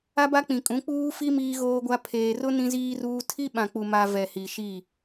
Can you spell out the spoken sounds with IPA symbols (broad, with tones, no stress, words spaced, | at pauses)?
a˦ba˦k͡pĩ˨kʼũ˨˦ k͡puː˦fi˦ miː˦ɣoː˦ɡʷa˦ pʰeː˨rʊ˦ nĩ˦ziː˦ruː˦ tʰi˦ɓã˨k͡pu˨ma˨ vɛ˨hi˨ʃi˦˨